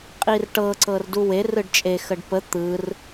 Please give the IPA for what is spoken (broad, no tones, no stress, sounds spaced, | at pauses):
qʼ i r ʈ ɤ ǀ ɤ r d u w e r ɯ ɖ t͡ʃʼ e x ə ɖ p ə t̪ ɯ r